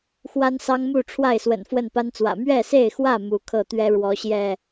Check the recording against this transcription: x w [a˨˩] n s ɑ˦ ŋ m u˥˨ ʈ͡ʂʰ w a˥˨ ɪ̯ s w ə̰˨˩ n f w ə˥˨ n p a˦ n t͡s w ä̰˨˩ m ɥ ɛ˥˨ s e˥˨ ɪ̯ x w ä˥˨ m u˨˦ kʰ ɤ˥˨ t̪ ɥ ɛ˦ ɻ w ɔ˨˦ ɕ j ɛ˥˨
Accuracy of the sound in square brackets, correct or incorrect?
incorrect